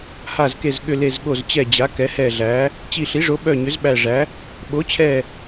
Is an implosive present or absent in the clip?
present